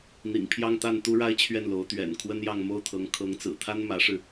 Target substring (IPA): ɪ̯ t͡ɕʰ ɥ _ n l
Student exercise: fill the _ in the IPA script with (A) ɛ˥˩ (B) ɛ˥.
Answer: A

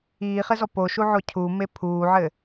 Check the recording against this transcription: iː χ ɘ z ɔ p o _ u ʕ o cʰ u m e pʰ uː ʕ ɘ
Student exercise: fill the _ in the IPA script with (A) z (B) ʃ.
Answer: B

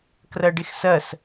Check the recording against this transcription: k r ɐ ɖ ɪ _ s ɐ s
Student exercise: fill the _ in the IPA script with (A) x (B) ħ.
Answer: A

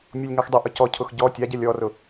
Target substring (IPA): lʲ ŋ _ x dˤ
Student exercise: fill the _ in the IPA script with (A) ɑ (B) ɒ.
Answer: A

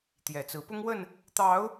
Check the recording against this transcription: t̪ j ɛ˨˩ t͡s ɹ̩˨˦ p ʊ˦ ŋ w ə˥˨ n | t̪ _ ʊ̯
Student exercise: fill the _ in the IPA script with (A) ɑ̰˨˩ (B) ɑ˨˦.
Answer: B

